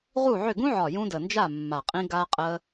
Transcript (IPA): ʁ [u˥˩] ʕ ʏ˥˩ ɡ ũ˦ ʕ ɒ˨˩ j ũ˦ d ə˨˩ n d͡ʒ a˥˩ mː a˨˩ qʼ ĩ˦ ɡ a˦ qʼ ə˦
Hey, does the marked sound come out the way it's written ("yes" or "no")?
yes